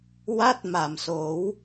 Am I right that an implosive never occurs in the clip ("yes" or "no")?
yes